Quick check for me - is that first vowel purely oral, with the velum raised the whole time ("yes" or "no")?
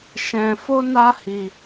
no